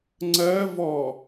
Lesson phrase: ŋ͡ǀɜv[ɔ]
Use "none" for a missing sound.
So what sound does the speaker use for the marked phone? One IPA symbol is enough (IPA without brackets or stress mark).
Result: ɔ